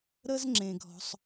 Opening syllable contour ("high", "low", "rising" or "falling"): high